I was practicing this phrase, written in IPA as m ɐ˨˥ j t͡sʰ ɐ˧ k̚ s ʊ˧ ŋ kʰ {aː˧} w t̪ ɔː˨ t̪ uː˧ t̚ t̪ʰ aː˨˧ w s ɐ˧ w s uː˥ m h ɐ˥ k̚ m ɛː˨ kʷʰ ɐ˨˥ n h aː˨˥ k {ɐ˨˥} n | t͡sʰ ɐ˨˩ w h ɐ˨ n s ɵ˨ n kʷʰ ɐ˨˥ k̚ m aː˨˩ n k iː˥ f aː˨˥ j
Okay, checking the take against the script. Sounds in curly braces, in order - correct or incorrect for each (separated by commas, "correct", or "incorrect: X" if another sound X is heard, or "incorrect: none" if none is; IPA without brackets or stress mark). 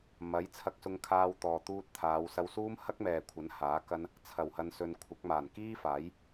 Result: correct, incorrect: ɐ˥